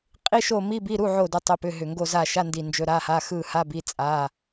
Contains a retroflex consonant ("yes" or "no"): no